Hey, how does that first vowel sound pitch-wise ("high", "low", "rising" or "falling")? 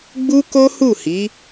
high